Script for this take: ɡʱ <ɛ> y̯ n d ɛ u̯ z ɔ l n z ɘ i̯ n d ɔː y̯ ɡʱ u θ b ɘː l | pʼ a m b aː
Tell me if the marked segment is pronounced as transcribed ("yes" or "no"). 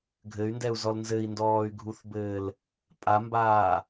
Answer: no